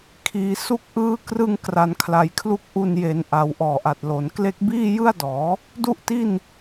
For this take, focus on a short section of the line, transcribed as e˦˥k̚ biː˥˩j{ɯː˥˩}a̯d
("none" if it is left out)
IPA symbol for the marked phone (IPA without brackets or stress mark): ɯ˥˩